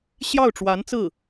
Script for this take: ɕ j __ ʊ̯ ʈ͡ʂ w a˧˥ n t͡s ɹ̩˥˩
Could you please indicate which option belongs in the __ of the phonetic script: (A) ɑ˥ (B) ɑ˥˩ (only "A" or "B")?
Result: B